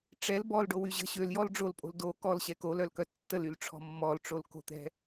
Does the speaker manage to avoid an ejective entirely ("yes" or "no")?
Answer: no